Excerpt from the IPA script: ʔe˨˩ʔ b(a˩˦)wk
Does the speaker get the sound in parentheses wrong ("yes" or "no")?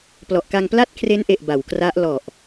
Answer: no